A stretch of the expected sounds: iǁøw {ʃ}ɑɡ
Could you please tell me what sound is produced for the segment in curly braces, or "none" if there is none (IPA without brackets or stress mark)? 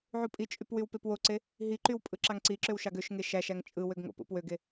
ʃ